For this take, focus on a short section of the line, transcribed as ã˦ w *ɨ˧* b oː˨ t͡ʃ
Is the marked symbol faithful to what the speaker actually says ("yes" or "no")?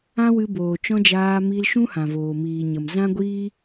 yes